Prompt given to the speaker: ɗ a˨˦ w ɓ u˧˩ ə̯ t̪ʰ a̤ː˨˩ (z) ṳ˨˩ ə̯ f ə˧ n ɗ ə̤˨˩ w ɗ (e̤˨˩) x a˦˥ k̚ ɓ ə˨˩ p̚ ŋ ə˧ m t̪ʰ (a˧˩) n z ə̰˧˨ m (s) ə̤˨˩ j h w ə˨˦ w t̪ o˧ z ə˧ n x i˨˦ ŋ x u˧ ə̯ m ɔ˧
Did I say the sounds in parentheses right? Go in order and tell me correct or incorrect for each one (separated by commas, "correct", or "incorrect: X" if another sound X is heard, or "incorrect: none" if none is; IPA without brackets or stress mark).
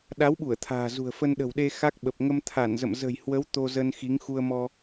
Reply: correct, incorrect: e˧, correct, incorrect: z